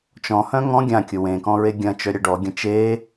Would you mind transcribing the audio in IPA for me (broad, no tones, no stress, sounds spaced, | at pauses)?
t͡ʃ ɔ̃ h œ̃ ŋ ɔ̃ ɡʲ ã kʲ ʊ w ẽ k ɔ̃ ɹ e ɡʲ ɐ̃ t͡ʃ œ ɾʲ ɐ ɖ ɔ ɡʲ ɐ̃ t͡ʃ e